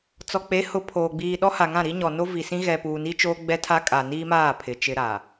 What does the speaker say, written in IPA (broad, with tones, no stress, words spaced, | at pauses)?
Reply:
t͡sɔ˨k͡pe˨˦ hʊ˨ pʰoː˨ɡ͡biː˨ ɗɔ˦ha˨ŋã˦˨ɾi˦ ɲɔ˨no˦vi˨sĩ˦ ɣɛ˨puː˨ni˦t͡ʃoː˦ ɡ͡bɛ˦tʰa˦ kʼa˨niː˦maː˦˨ pʰɪ˨ t͡ʃɪ˦ɾa˨